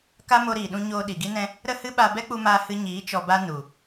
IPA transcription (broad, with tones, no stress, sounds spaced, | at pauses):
k a˦ m o˧ ɾ iː˨ ɗ ũ˧ ɲ oː˧ ɗ i˨ ɡ i˦ n ɛ̃˦ | ɾ ə˦ h ɨ˦ ɓ a˧ b ɛ˦ k͡p u˧ m aː˧ h ɨ˧ ɲ iː˨˦ t͡ʃ ɔ˧ b a˦ n u˨